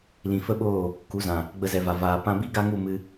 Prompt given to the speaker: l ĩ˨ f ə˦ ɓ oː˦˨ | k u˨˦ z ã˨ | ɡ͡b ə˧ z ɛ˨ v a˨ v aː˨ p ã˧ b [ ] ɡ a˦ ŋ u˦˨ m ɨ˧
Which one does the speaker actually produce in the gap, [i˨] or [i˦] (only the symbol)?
i˦